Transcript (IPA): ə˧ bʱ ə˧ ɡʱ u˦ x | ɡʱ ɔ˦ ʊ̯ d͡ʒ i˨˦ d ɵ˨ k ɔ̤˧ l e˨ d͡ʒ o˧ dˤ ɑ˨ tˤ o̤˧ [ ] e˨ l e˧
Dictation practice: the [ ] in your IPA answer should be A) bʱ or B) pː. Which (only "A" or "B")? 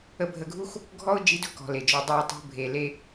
A